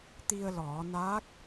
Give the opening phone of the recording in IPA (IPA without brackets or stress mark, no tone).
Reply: t̪